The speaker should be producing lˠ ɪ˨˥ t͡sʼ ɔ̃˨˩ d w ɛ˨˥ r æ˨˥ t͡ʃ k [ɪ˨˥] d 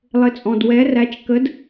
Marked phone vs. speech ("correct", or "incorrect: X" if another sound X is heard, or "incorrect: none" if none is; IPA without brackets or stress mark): incorrect: ə˨˥